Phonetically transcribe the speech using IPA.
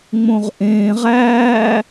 ŋ͡m õ ʁ ʔ ẽː ʁ æː

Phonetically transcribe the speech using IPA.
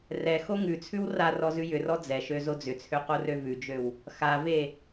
r ɛ x o ŋ ʉ t͡sʰ ʉ w r a r ɔ z ʉ j ʏ r ɔ d͡z ɛ ʃ ø z o d͡z ʏ t͡sʰ ø q o r ø v ʉ d͡ʒ ø w | x a v e

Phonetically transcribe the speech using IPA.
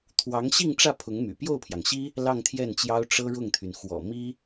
t̪ʰ w ɑ˧˥ ŋ ɕ i˥˧ ŋ ʈ͡ʂ ä˥˩ pʰ ʊ˧˥ ŋ m y̰˨˩ p j o˥˩ ʊ̯ pʰ j ɑ˩ ŋ ɕ i˥ | l ɑ˥˧ ŋ t̪ʰ j ɛ˥˩ n t͡ɕ j ɑ˥ ʊ̯ ʈ͡ʂ ɤ˥ ɻ ʊ˥˩ ŋ t̪ʰ y˩ n x w ɔ̰˨˩ m i˥

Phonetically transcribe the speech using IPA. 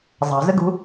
zˤ ɑ̤ z ə ɡ ṳ

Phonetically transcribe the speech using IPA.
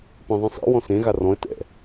p ẽ ðˤ ĩ sˤ ḛ w ɔ̃ s ẽ ɣ a r ɔ̃ ə̯ t ɛ̰

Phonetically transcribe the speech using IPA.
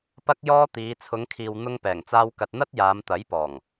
p ɐ˥ k̚ j ɔː˥ t̪ iː˨˧ t͡sʰ ʊ˨˧ ŋ kʰ iː˨ w n̪ ʊ˧ ŋ p ɛː˨˩ ŋ t͡s aː˧ w k ɐ˨ t̚ n̪ ɐ˥ t̚ j aː˨˧ m t̪ ɐ˨˥ j p ɔː˨˩ ŋ

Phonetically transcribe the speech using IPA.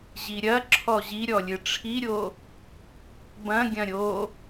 ʑ i ɾʲ ɐ ǁʰ ɔ ʑ i ɾʲ ɔ lʲ ɨ ʈ͡ʂʰ i ɾʲ o | b ɐ̃ ɡʲ ɐ̃ ɾʲ o

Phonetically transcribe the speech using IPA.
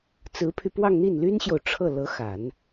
t͡s ɹ̩˧˥ pʰ y˧ p w ɑ˥˧ ŋ n̪ i˥˩ n l y˥ n ɕ j o˨ ʊ̯ ʈ͡ʂʰ ɤ˥˩ l ɤ˧˥ x a˨˩˦ n

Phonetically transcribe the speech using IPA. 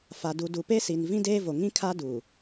f a˨ d u˨ d u˨ p e˦ s i˨ n v ĩ˦ d eː˦ v o˨ ŋ ĩ˦ kʰ a˦ d u˨

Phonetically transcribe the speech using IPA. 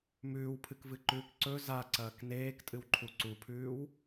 m ʉː w pʰ ɨ k v ɨ ǃ ʉː k ǀ ɵ z a ǀ ɐː k n eː k tʼ ɨ w ǃʰ u ǀ u pʰ ʉː w

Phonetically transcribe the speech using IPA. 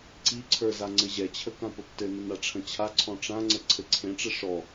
ǀ i ǀʰ ə˞ z a ŋ͡ǀ ɘ ʑ ɛ t͡ɕʰ ə k ã p ə p t ɘ n ə n a ʈ͡ʂʰ ə̃ t͡ɕʰ a ǀʰ ɔ̃ ʈ͡ʂ ã ŋ͡ǀ ə ǀʰ ɘ ǀʰ ẽ ʈ͡ʂ ɘ ʂ ɔ

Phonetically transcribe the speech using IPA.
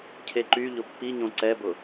cʰ e ǃ y ʎ ʊ pː i ɲ õ ǀ ɛ b ʊ

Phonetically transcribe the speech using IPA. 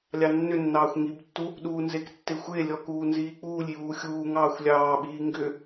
lʲ ɑ nː ʏ nː ɑː xʷ ŋ i b tː u | ɗ uː n z e k tː e xʷ e lʲ ɔ k uː n z iː k͡p uː lʲ j uː xʲ uː ŋ ɑː xʷ lʲ ɑː ɓ iː ŋ ɡ ʏ

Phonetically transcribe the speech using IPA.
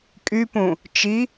kʼ y p ũ | t͡ʃ i

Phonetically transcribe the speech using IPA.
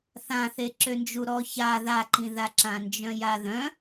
θ ã θ e ǁ ø n d͡ʒ u ɾ ɔ ç a ð a ǃ ĩ ð a ǁ ã n d͡ʒ œ̃ j a ð œ̃

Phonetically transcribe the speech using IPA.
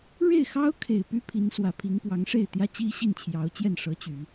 ɻ e˥˩ ɪ̯ x ɑ˥ ʊ̯ kʰ e˨˩ ɪ̯ p y˥ pʰ i˧˥ n s w ä˨˩ pʰ i˧˥ ŋ p w ɑ˧˥ ŋ ʂ e˥˩ ɪ̯ t̪ j ä˥ t͡ɕ i˥ ɕ i˥˩ n t͡ɕʰ j ɑ˧˥ ʊ̯ t͡ɕ j ɛ˥˩ n ʂ ɤ˧˥ t͡ɕ y˨˩˦

